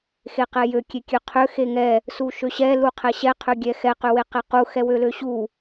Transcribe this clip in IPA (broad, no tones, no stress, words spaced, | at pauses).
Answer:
xeqɛjø kʲekʲøqʰø xeŋɛ | suʃøɕɛ luqʰɛɕɛ qʰøɡʲɛxɛ qøweqɛqu xɛwøløɕu